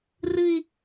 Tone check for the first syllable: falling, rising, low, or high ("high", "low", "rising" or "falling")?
low